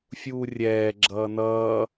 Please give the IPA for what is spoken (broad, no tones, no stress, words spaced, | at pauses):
fʲuːrʲɛː ɡ͡ǁʌːnʌː